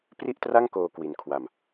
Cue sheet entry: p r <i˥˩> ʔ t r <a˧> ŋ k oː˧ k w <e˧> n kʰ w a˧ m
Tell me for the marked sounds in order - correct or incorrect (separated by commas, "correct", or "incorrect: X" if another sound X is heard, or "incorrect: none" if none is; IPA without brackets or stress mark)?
correct, incorrect: a˥˩, incorrect: i˧